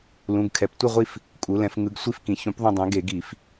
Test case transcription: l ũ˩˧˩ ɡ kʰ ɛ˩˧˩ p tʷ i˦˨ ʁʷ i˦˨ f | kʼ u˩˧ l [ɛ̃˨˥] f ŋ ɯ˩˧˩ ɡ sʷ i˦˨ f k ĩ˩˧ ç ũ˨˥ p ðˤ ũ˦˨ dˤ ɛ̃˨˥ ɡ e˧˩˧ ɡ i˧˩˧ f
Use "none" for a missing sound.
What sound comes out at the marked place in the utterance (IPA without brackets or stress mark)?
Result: ɛ̃˩˧